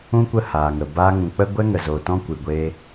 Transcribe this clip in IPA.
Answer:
ũ˦ kʷ ə˦˨ h aː˨ ŋ ə˨ b aː˧ ŋ ũ˨ k͡p ə˦ ɡʷ ɛ˦ ŋ ə˨ z o˨ t ɔ̃˦ kʷ ɨ˨ ɡʷ eː˧

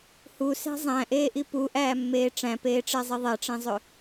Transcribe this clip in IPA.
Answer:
h u s æ̤ zˤ æ̃ ʔ eː ʔ i p u ʔ æː mː eː ʈ͡ʂ æ̃ p eː ʈ͡ʂ ɛ zˤ i ðˤ ɛ ʈ͡ʂ ẽ zˤ ɵ

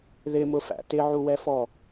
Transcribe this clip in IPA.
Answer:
ð ɪ m ʊ f æ̰ t ɪ ʕ u w ɛ f ɔ

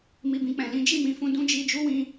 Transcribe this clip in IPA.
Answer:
m i˧ b ĩ˧ k͡p ɛ̃˨ l ĩ˨˦ d͡ʒ i˦˨ m ĩ˨ f ũ˧ d ũ˦ d͡ʒ i˧ d͡ʒ u˦ w ĩ˧

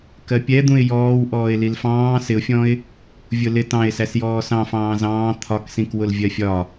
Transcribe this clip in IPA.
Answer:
k ɜ pʲ ɛ d̪ ũ ɪ̯ j ɔː w ʔ ɔː ɪ̯ l i l f ɑ̃ː s ɪ ʊ̯ fʲ ɔ̃ ɪ̯ | vʲ ʊ l ɪ t ɑ̃ ɪ̯ s æ s j ɔː s ɑ̃ f ɑ̃ː z ɑ̃ː t̪ʰ ɒ k s ĩ k w ʊ l vʲ ɜ fʲ ɒ

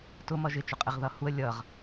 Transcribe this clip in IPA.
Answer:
t ʊ m ʌ ʒ ɪ t͡ʃ ʊ qʼ ɪ ʁ ð ʌ h u ə̯ lʲ ʌ ʁ

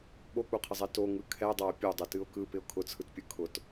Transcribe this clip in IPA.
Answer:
ɓ o k͡p u qʰ ə zˤ ɛ t o ŋ ɯ kʰ ɛ dˤ a ʊ̯ pʲ o dˤ ɛ t ɨ ʊ̯ k ɯ p ɪ ʊ̯ kʰ ʊ t͡sʰ ɯ t pʲ ɯ kʰ ʊ t

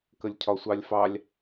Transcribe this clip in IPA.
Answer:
k ə lʲ cʰ ɒ sʷ ɑ lʲ f ɑ lʲ

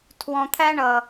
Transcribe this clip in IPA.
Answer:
tʰ w ɔ̃˧ t̪ʰ æ˦ ɳ ʌ˨

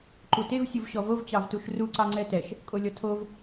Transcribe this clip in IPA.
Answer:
ǃ u t e v sʲ u v ɕ ɔ v o v t͡ɕ ɑ v t u ʃ r u ǀ ɑ ŋ͡ǀ ɛ t ɛ ʃ | kʼ o lʲ ɔ tʰ o v

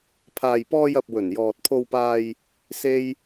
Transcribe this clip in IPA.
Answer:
pʰ aː˨ j p ɔː˧ j ɐ˨ p̚ w ɵ˨˩ n j ɔː˨ t̚ pʰ o˧ w p aː˧ j | s e˥ j

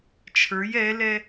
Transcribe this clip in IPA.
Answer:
t͡ʃʰ ə˞ j ɛ l ɛ

